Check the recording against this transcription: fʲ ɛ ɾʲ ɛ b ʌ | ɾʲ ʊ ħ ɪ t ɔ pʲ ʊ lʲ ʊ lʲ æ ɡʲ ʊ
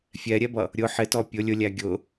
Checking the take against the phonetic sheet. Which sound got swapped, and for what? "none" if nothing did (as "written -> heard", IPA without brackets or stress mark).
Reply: none